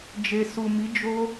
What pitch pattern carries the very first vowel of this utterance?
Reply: low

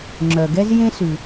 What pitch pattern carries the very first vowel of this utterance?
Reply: low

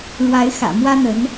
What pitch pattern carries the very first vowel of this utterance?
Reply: rising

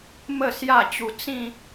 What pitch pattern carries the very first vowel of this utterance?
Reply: falling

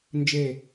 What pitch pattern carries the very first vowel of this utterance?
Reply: falling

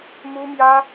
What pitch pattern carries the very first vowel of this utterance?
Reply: high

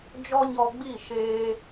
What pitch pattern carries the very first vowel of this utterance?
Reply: high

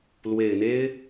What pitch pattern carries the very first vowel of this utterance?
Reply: low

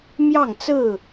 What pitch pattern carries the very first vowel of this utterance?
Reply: falling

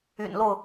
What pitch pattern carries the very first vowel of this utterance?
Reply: low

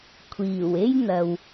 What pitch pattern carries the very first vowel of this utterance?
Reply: low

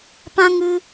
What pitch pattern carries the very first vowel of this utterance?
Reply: high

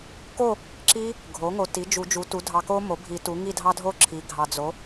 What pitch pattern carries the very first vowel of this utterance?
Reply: falling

